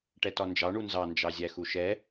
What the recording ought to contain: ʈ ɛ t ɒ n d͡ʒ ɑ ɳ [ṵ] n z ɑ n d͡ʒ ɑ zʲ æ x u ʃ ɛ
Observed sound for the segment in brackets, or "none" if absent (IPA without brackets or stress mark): u